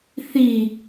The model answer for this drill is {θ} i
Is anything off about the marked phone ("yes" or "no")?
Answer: no